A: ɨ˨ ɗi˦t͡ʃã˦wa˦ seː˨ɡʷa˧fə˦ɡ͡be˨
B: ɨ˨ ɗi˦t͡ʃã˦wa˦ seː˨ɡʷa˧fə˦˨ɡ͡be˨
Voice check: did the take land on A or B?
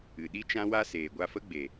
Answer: A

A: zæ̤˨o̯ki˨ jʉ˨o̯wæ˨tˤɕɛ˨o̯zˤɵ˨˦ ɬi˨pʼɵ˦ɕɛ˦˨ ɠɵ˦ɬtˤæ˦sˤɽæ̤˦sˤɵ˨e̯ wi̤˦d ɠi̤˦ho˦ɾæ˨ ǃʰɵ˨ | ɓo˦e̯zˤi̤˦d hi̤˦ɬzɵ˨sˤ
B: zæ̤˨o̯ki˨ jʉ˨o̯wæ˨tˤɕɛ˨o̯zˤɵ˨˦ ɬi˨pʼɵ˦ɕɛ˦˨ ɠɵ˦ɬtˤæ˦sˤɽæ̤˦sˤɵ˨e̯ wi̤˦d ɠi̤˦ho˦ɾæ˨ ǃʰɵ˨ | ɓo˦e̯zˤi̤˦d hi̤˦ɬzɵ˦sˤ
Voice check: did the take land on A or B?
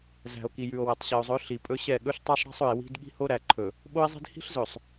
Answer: A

